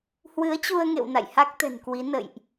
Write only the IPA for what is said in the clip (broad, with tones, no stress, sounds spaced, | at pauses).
h w ɨ˨˦ ə̯ t͡ɕ u˧ ə̯ ŋ ḛ˧˨ w n a̰˧˨ j h a˦˥ k̚ t̪ ɛ̤˨˩ n k w i˨˦ n ə̰˧˨ j ʔ